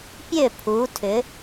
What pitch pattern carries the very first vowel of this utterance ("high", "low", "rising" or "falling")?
falling